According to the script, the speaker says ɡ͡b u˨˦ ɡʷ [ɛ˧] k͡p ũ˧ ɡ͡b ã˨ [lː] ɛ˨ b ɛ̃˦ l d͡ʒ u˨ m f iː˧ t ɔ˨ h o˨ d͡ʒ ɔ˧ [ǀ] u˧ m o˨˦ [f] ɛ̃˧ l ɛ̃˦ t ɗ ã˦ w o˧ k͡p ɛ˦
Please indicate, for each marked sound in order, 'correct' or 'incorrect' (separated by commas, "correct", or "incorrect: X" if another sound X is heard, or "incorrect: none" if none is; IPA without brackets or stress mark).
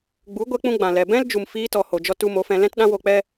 correct, incorrect: l, incorrect: t, correct